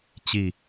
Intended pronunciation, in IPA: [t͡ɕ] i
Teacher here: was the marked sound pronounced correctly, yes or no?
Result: yes